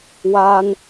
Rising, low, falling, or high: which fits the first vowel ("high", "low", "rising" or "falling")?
high